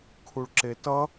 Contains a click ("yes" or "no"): yes